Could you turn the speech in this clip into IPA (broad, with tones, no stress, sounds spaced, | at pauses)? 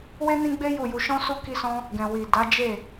w e˦ n ĩ˦ ɡ͡b e˦ j u˦˨ j u˧ ʃ ɔ̃˦ s u˦ k i˦ s ɔ̃˦ | ɡ ɛ̃˨ w i˨ d a˨˦ d͡ʒ e˦˨